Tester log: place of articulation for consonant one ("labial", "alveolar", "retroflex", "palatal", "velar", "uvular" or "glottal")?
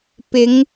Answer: labial